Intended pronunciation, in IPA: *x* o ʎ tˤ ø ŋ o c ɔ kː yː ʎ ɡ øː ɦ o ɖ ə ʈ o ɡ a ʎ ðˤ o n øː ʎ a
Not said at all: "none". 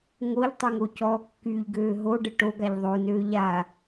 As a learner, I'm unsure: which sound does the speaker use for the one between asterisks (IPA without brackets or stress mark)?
ŋ